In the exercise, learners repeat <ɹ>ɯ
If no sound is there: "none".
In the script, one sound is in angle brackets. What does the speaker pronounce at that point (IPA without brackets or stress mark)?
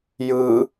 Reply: j